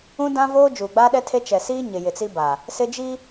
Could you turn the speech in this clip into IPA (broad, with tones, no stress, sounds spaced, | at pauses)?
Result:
ũ˦ d ã˦ v oː˦ d͡ʒ uː˨ ɡ͡b aː˦ ɗ ɛ˦ tʰ e˦ t͡ʃ ɛ˨ s iː˦ ɲ ɪ˨ j ɪ˨ t͡s i˦ b a˨ | s ɪ˦ d͡ʒ i˦